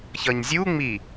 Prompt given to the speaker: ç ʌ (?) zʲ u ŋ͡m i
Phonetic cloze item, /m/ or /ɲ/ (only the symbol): ɲ